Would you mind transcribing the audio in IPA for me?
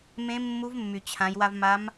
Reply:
m ẽ˧˥ mː u˧˥ v mː y˩ t͡ɕʰ ã˩˧ j w a˧ v m a˧˥ m

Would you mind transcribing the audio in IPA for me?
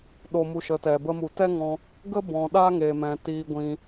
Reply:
ɗ o˧ m u˧ ʃ ə˨˦ t ɛ˨ b ə˧ m u˨ t ɛ˦ ŋ ɔ̃˧ | ɡ ə˦ b ɔ̃˨ ɗ a˦ ŋ eː˨ m ɛ̃˨ t iː˧ ɡʷ ĩ˧

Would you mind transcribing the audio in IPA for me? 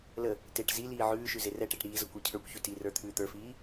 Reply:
l ə | t e ʈ z i l iː ʕ ʉː ʃ ʉ z e r ɛ ʈ e ʈ ɾ iː z ʌ kʷ ə˞ cʰ ə˞ kʷ ç ʉ t i r ə˞ t̪ʰ ʉː t̪ ə˞ f iː

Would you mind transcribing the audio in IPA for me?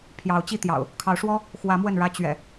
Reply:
pʰ j ɑ˨˦ ʊ̯ t͡ɕ i˥˨ t̪ j ɑ̰˨˩ ʊ̯ | kʰ ɑ˨˦ ʊ̯ ʂ w ɔ˦ | x w ä˨˦ m w ə˥˨ n ɻ ä˦ t͡ɕ ɥ ɛ̰˨˩

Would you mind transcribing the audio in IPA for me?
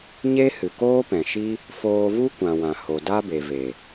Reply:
ɲ e˦ h ɨ˨ k oː˦ p ɛ̃˨ ʃ i˦ | f oː˧ v u˦ kʷ ã˨ w ã˨ h o˨ d a˦ b e˨ v e˨

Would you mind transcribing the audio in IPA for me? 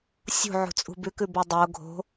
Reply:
sʲ ṳ ʕ ṳ t͡sʼ ṳ b ʉ k ʉ b o dˤ o ɡʱ o̤

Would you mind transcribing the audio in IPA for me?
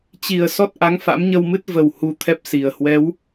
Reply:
t͡ɕ i˨˩ ə̯ s ɔ˦˥ t̚ ʔ a˨˦ ŋ f a̰˧˥ m ɲ ə˧ w m ɨ˦˥ t̚ v ə˨˩ w h u˧ t̪ʰ ɛ˦˥ p̚ s i˨˩ ə̯ h w ɛ˨˦ w

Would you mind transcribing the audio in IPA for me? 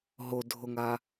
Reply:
ɦ o dʱ o ŋ a

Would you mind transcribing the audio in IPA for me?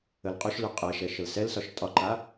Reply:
ə l qʼ ʏ ʃ l ʏ qʼ ɛ ʃ ɛ ʃ ə l s ɛ l s ɒ ʃ tʼ ɒ ǃ a

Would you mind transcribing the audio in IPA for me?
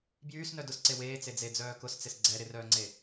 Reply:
b j yː s n œ d ʊ s ǀ e w eː t͡s e d͡z e d͡z œː k ʊ s t͡s ɪ s ɡ͡ǀ ɛ ɾ ɪ r œː ŋ͡ǀ e

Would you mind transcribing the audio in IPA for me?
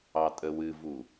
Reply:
ɑ tʼ ə w ɨ v u

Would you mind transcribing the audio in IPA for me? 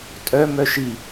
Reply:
tʼ œ m œ ʃ i

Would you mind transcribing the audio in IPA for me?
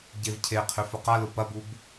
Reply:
ɟ e v cʰ e qʰ ʏ f ʊ q a l ʊ p ɐ b u b

